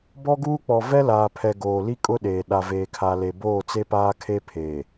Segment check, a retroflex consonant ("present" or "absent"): absent